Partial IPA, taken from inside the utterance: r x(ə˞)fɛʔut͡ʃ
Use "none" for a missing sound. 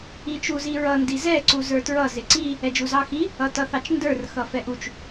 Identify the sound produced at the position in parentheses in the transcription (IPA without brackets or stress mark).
ʌ